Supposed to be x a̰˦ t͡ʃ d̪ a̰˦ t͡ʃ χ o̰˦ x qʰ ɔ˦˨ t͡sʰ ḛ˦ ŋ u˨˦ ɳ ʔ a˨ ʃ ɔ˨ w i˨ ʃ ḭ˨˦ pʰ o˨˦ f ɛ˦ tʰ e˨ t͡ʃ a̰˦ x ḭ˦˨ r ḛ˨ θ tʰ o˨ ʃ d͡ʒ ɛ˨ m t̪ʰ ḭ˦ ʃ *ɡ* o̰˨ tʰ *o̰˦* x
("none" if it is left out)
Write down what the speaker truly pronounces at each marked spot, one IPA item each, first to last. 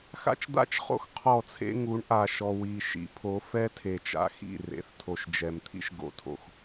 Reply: ɡ, o̰˨

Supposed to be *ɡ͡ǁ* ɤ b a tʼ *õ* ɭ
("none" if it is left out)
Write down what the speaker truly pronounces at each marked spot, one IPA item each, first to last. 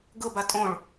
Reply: ɡ, õ

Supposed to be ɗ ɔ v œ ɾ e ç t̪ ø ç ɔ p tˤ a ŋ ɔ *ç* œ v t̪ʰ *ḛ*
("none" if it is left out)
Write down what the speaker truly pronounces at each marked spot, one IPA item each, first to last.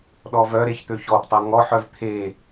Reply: ħ, e

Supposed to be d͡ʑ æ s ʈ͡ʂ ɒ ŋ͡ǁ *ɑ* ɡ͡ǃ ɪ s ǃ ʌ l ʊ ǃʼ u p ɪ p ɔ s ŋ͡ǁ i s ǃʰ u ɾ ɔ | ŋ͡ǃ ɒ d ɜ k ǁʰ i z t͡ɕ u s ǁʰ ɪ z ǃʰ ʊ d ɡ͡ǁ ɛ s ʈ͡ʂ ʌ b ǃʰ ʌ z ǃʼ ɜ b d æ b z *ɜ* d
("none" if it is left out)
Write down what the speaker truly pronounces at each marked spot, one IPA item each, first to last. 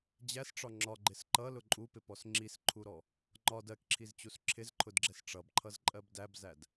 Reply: ɒ, æ

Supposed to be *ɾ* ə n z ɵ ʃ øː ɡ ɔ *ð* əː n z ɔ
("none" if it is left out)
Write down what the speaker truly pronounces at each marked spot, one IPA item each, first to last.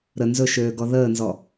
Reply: ɾ, ð

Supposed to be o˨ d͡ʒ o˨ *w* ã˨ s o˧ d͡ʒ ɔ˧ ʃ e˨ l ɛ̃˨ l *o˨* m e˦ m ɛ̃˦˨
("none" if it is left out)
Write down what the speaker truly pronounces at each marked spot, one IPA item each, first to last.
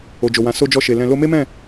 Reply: w, o˧

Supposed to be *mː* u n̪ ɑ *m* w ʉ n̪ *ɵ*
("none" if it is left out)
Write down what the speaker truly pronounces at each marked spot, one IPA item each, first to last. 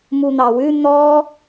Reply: m, none, ɔ

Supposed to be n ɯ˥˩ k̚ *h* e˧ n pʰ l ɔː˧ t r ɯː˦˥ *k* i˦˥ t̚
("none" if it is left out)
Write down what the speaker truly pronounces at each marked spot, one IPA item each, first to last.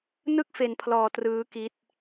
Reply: f, k

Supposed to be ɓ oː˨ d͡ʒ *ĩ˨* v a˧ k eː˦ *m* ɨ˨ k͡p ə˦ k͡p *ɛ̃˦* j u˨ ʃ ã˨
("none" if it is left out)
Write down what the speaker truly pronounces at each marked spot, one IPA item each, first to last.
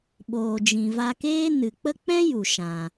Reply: ĩ˨, n, ɛ̃˦

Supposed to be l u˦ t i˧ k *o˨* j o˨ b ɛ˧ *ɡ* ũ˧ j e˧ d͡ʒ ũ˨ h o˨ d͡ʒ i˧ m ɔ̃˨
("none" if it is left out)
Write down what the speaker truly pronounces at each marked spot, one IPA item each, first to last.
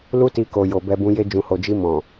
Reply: o˨, b

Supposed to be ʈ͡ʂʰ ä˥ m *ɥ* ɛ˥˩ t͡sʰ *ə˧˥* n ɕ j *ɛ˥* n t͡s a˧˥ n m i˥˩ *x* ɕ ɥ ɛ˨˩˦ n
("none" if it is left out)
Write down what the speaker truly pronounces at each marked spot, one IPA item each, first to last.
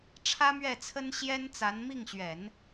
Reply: ɥ, ə˥, ɛ˥, ŋ

